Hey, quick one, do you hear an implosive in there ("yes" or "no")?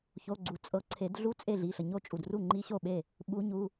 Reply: yes